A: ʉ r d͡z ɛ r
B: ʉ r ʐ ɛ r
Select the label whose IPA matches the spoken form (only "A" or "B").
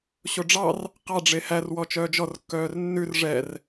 B